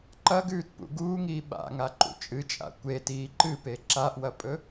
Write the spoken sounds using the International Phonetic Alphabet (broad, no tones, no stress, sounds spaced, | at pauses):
ǃ ɐ ɡ ʉː t p ṵ ɡ uː ŋ iː ɓ a̰ ŋ a ǃ ṵ t͡ʃʼ ɨ t͡ʃʼ a̰ kʷ e t iː ǃ ɨ p e ǁ a ʔ w ɐ pʼ ɵ